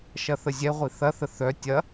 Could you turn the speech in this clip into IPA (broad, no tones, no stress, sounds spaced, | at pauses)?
ʃ ɐ θ ə zʲ ɛ ʁʷ i θ ɐ θ ə θ œ tʲ ɐ